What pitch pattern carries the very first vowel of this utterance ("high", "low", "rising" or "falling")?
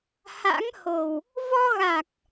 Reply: rising